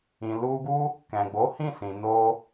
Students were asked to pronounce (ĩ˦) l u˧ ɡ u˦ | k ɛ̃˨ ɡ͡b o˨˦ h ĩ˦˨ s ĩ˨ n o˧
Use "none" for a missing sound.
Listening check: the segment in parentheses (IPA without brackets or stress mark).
ĩ˨